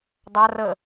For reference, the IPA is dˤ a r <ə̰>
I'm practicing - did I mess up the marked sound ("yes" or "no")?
yes